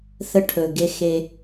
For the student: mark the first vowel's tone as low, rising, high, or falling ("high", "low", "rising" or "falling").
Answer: high